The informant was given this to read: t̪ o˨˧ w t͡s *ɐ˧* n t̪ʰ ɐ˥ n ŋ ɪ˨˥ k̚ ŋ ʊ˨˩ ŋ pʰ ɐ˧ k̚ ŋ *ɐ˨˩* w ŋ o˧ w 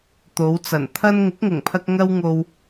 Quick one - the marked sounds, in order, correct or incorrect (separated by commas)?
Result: incorrect, incorrect